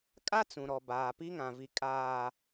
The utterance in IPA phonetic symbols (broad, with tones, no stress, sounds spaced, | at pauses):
kʼ a˦ t͡s ũ˨ ɾ ɔ˨ b aː˨ p i˦ ŋ ã˨ v i˨ kʼ aː˨